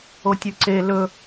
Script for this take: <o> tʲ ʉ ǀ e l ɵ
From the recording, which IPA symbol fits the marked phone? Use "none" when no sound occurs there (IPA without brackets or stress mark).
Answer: o